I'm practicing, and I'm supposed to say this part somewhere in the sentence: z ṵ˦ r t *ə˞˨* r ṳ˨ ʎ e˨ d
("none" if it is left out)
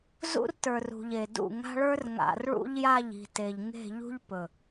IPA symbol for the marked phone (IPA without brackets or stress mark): ə˞˨